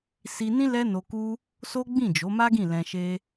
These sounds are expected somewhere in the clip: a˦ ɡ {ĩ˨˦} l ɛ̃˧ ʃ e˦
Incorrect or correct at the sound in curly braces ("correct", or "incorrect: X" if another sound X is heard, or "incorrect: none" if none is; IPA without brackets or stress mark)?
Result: incorrect: ĩ˦˨